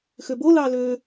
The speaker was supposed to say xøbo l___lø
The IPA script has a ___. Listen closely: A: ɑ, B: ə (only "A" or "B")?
A